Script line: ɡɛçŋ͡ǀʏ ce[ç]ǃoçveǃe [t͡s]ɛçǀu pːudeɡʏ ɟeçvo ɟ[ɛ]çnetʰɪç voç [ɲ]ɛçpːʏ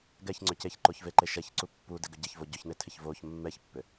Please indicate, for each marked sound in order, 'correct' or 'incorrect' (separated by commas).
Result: correct, incorrect, incorrect, incorrect